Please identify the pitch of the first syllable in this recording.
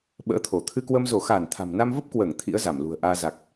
rising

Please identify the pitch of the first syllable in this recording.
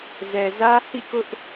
low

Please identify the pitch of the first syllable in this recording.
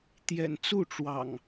low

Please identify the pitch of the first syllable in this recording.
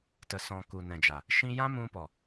low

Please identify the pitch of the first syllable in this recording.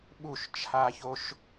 falling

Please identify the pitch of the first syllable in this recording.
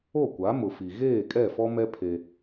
falling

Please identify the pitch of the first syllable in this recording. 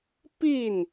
falling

